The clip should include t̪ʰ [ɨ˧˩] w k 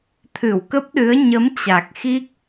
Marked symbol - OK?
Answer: yes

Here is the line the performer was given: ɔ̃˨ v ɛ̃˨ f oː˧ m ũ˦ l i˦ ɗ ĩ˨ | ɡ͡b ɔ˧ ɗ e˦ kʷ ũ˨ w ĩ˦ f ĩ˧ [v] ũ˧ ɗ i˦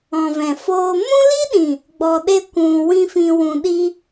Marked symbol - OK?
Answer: no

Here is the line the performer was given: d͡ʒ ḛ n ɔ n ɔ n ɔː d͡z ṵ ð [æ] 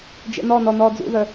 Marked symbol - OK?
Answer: no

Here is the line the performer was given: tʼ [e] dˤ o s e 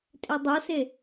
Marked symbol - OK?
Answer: yes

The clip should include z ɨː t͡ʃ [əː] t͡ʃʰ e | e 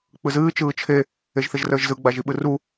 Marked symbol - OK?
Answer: no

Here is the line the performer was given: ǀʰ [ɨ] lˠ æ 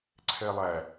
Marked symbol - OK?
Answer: no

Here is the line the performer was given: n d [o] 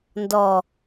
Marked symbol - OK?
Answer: no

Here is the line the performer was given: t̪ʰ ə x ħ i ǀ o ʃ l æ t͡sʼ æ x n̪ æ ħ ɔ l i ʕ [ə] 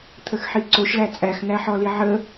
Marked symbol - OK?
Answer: yes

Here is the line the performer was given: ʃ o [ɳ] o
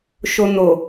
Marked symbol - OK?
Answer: no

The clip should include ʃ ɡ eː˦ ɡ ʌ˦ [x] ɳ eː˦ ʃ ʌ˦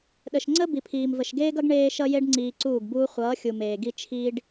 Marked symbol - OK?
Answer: no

